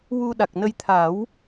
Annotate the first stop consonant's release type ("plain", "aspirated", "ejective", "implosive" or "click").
implosive